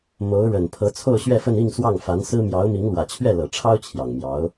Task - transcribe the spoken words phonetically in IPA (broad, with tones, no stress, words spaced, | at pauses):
mo˧˥ʊ̯ɻə˨˩n pʰɤ˧˥t͡sʰo˥˧ʊ̯ɕɥɛ˥˧fə˥˧n i˥˧ŋ swɑ˥˩ŋ fa˧˥nsɹ̩˥ mjɑ˧˥ʊ̯mi˧˥ŋlwä˨˩ t͡ɕʰɥɛ˥˩lɤ˨˩ʈ͡ʂʰɑ˥ʊ̯ t͡ɕʰjɑ˨˩ŋmjɑ˧˥ʊ̯